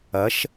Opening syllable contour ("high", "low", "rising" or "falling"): rising